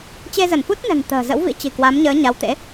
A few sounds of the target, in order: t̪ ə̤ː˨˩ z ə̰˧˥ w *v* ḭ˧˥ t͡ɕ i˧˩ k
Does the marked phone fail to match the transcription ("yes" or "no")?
no